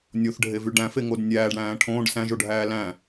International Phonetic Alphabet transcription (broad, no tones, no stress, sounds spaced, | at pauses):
nʲ o θ ɖʱ e v y ɖ æ̃ f e ŋ o d nʲ æː ɖ ɽ æ̃ː ʈʰ õː ɖ s æ̃ ʒ o ɖʱ æː l æ̃